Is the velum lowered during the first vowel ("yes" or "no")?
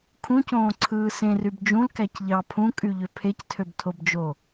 yes